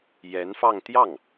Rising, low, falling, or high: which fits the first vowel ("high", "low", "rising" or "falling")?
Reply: rising